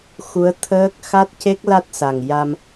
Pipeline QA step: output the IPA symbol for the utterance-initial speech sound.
x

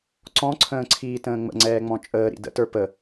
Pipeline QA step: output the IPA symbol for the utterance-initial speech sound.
ǀ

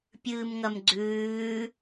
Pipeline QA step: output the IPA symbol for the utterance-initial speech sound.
pʲ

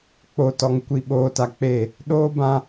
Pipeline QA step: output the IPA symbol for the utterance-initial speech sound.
k͡p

